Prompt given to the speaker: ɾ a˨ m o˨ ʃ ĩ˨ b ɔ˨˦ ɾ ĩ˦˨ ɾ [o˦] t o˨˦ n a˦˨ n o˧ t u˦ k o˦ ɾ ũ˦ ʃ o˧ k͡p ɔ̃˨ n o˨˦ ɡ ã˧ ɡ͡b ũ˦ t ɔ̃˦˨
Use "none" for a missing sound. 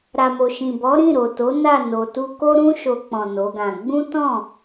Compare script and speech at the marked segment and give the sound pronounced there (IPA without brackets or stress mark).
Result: o˨